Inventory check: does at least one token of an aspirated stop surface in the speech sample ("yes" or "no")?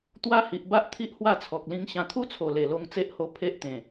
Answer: yes